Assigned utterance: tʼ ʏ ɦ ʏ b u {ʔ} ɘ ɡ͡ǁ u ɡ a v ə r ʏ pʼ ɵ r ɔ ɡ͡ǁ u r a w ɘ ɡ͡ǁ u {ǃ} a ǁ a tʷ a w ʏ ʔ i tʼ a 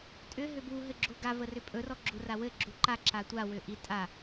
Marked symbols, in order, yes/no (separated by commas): no, yes